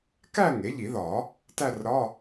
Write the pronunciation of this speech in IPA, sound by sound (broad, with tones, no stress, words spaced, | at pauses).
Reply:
kæ˥˧ ŋe˩˥ʎi˨˩˦ðɒ˨˩˦ | tæ˥˧rɾɒ˧˥˧